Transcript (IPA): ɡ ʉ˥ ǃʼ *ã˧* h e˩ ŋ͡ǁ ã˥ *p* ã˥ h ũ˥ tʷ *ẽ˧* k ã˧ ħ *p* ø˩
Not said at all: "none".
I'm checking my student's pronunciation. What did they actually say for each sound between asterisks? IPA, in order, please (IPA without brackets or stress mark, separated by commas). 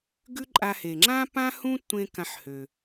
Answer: a˧, p, ẽ˧, h